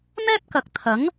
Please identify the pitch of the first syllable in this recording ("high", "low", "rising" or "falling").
high